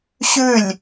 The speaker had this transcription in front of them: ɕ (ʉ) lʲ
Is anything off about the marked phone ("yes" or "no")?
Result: no